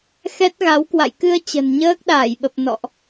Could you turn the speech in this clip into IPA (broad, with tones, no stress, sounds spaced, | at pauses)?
x ɛ˦˥ t̚ ɣ a˨˦ w k w a̰˧˨ j k ɨ˧ ə̯ t͡ɕ ə̤˨˩ n ɲ əː˦˥ k̚ ɗ aː˧˩ j ɓ ə˨˩ p̚ n ɔ̰˧˨ ʔ